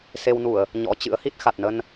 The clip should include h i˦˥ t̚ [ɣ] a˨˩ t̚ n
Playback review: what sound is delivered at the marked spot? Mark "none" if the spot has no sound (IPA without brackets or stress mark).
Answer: x